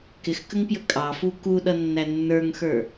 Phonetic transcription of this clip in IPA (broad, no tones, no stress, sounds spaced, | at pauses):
k ɪ x k ə ŋ p j ə kʼ ɑ f u k u ɗ ʌ nː æ nː ə˞ ŋ x ə˞